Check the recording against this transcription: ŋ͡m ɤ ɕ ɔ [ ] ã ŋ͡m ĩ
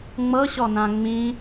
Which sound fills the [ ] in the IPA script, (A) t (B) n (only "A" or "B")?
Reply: B